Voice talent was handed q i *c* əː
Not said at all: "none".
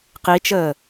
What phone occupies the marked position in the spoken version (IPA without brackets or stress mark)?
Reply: t͡ʃ